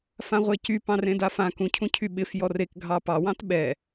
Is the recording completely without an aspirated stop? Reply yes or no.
no